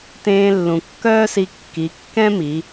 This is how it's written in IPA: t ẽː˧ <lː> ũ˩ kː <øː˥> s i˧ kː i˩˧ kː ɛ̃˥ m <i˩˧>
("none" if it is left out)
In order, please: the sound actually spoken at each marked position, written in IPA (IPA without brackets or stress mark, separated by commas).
lː, œː˥, i˩˧